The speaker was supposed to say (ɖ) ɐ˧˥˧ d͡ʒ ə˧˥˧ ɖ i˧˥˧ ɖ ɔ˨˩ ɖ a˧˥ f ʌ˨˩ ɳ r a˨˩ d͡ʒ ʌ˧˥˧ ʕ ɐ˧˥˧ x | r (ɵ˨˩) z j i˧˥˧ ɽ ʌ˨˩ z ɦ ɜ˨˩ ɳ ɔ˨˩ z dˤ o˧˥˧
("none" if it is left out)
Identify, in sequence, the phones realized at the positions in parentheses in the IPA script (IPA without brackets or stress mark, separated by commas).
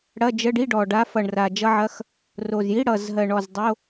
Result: ɽ, o˨˩